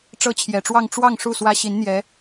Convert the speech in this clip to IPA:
ʈ͡ʂɤ˥t͡ɕʰjɛ˨˩ʈ͡ʂwɑ˥˧ŋ ʈ͡ʂwɑ˥˧ŋ ʂu˥˩swä˥ ɕi˧˥nn̪jɛ˧˥

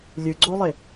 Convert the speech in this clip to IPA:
lʲɨɡ͡ǀolˠe

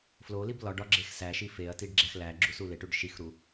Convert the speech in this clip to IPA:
flolib lɒɖɒ ɡ͡ǁexsæʃi feɐ̯tiɖ ɡ͡ǁæxlæɡ͡ǁu suleʈuɖ ʃixɾu

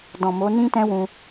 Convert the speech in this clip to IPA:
dɔ̃˨mo˨˦ nĩ˦tɛ̃˦wũ˧

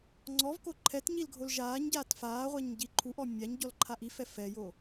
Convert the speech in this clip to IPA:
ŋ͡ǀɔvko ǃʰɛt ɲilɡʱolʒaːɲɟaːt faːʁʷaɲ ɟiǃʰuʔɔ mʲaɲ ɟɔlǃʰaʔifɛ fɛjo

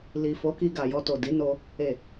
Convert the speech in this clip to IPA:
li˨fo˨˦ki˧ ɡa˨jɔ˧to˨ di˨˦no˧ | e˨

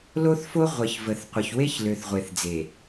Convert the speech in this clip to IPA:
lo˦θfo˦ ʁʷə˨ç və˨θqʷə˨çwe˦ç lø˨θʁʷe˨θd͡ze˨

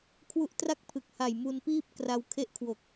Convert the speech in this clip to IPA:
kʰwu˦˥ʔtra˥˩k̚pʰɯ˨˩k̚ha˨˩j mu˧npiː˥˩p̚ kra˧w kʰe˦˥ʔkʰwo˨˩k̚

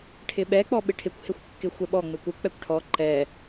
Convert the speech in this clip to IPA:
ʈʰɪɓɛ k͡pɔɓɪʈʰɪkʷ hɪxʷkːɪxʷɛɓɔ ŋ͡mɪkʷɪ k͡pɛkʷʈʰɔ ǃɛ

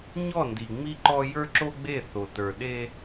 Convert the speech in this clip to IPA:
ɲɔ˦˨ndi˨ ŋ͡mi˦ǃɔ˦ jə˞˦ǁo˦ɡ͡be˦˨θo˨ tə˞˨ ɗe˦

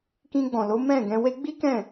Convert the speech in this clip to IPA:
kĩ˧ɡ͡bɔ̃˨lo˨˦ mɛ̃˦˨ɡɛ̃˧we˦ ɡ͡bi˦kɛ̃˦˨

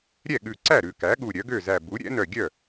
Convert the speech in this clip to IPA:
ɾʲɛ˥˩ɠʉ˧˩ ǀæ˥˩ ɾʉ˧˩kæ˩˥ɠu˧˩ ɾʲœ˩˥ɡø˥˩zæ˧˩ bu˩˥ ɾʲɛ̰˩˥nœ˧˩ɡʲœ˥˩

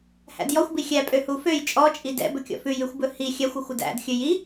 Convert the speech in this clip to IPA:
hæ̰djɔxʷbi xʲæpʼø huføj t͡ʃʼɔ t͡ʃʼidɛ̰ bɵkʲɔ̰fʉj ʉxʷbɵhi xʲæxʷ ʉxʷʉdæ̰dxʲɵ ji

